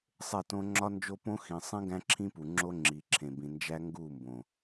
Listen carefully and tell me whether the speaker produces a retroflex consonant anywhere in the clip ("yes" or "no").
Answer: no